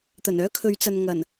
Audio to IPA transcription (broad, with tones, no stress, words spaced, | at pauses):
t̪ɐ˨˩nœː˥kʰɵ˨˧ɥ t͡sɐ˨n ŋɐ˨˩n